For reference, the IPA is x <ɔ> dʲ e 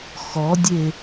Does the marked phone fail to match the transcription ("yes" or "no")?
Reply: no